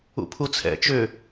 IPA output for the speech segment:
ṵ pʰ u t͡sʰ ɛ̰ t͡ʃ ʏ

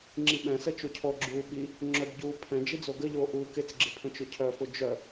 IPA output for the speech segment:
ŋ͡ǁ i ɓ ɛ̃ s ə t͡ʃ o cʰ ɔ ɡ͡ǁ uː ɓ i | ŋ͡ǁ œ b ɟ uː pʰ ɛ̃ d͡ʒ i d͡z o ɡ ə ʎ oː ʔ uː k ɪ t͡s ɡ͡ǁ ɪ pʰ ə̃ t͡ʃ ʊ cʰ œ f ʊ d͡ʒ œ

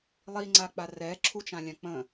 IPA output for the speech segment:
lˠ i ŋ͡ǀ a k͡p a r ɛ ǁʰ u t͡ʃ ã lʲ ã k͡p ə̃

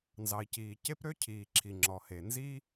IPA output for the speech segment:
n z ɑ˩ i̯ c iː˩ c e˥ p ɾ ø˥ cʰ iː˩ ǁʰ i˩ ŋ͡ǁ ɔ˩ h e˩ n z i˥

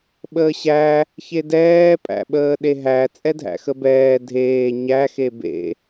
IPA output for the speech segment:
ɓ əː ɕ æ | ç e d ɛː pʼ æ̰ ɓ əː ɗ e ɦ æ t͡sʼ ɛ dʱ æ̰ x ə b ɛː dʱ eː ɲ æ x e b ḛ

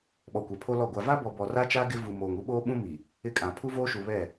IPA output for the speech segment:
ɓ ɔ˨ kʷ ɛ˨ pʰ o˦ l ɔ˦˨ ɡʷ a˨ v a˦ b ɔ˨ b ɔ˨ r a˦ t͡ʃ a˦ ɡ ɪ˦ v u˨ m oː˨ ŋ u˦ ɓ oː˦ ɓ ũ˦ m i˨ | ɪ˦ kʼ ã˨ pʰ u˦ v oː˦ ʃ u˨ β ɛ˦˨

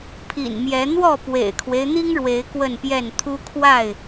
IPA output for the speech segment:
pʰ ḭ˨˩ n m j ɛ˨˦ n̪ w ɔ˥˨ p w ḛ˨˩ ɪ̯ kʰ w e˦ ɪ̯ n̪ i˦ ŋ ɻ w e˨˦ ɪ̯ k w ə˥˨ n p j ɛ˥˨ n t̪ʰ u˦ kʰ w a˥˨ ɪ̯

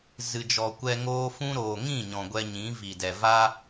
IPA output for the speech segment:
z ɨ˨ d͡ʒ ɔ˨ kʷ ɛ˧ ŋ oː˦ f ũ˦ ɾ oː˨ ŋ ĩ˦˨ ɲ ɔ̃˨ ɡʷ ɛ˧ ɲ ĩ˨˦ v i˨ d ɛ˨ v a˦

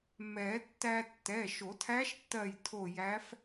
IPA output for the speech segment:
m ɛ˨˩˦ tː æ˧ tː ɛ˩˧˩ ʃ o˨˩˦ tʰ æ˧˥ ʃ tː ɜ˧˩ j tʰ o˧˩ j æ˧˥ f

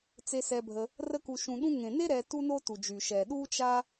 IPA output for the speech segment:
t͡s e˧ s ɛ˧ bʱ ə˧ | r ə˧ k u˨ ʃ ũ˨ ɗ ũ˧ ŋ ẽ˨ n e˦ ɾ ɛ˧ t u˦ n o˦ t u˨ d͡ʒ y˨ ʃ ɛ˨ ɗ u˦ t͡ʃ a˦

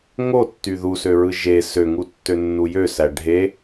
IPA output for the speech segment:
ŋ o tː y ð u s ø ɹ ɯ ʒ e s ø ŋ u tː ø nː u j ø s æ ɖʱ e

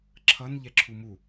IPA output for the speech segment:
ǁʰ ʌ n ʎ ɛ ǁʰ u m u

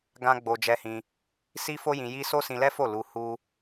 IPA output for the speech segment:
ɡ ã˦ ɡ͡b o˧ d͡ʒ ɛ˧ h ĩ˧ | s i˦ f o˦ j ĩ˧ j i˦ s o˦ s ĩ˧ l ɛ˦ f o˦˨ l u˧ h u˦

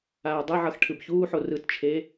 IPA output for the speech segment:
aː dˤ ʌ ʕ ʌ x ʈʰ ɯ b ç uː ħ o r ɯ t t͡ʃʰ e

